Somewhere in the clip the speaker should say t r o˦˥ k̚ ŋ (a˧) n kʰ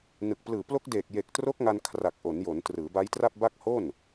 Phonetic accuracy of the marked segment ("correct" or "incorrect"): correct